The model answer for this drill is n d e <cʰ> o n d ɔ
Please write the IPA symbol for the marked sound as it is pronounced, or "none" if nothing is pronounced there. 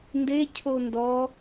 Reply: cʰ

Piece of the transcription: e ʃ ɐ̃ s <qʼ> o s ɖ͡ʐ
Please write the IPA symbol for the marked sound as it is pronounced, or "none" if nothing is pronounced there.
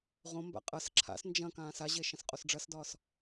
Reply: qʼ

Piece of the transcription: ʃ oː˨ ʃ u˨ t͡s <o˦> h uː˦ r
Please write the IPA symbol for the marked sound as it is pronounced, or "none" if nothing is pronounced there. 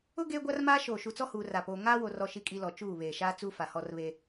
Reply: ɔ˦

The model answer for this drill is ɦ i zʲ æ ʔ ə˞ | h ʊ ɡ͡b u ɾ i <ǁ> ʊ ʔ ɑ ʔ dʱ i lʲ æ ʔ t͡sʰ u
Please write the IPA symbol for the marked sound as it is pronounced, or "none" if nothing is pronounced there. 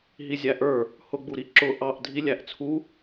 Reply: ǁ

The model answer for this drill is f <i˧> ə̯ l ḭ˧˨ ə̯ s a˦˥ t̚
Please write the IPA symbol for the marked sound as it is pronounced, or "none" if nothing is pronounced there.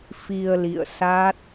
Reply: i˧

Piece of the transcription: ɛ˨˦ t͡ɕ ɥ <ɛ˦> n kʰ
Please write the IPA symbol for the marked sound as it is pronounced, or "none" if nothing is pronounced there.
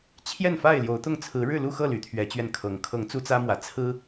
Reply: ɛ˧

